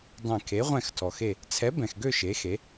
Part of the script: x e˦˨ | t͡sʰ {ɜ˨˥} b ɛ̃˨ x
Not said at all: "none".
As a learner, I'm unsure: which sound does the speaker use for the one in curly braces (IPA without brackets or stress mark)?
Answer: ɛ˨˥